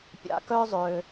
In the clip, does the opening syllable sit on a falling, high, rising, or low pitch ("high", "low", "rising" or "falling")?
rising